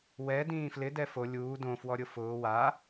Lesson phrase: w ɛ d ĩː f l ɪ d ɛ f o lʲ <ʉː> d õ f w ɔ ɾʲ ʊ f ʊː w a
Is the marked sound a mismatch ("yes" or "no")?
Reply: yes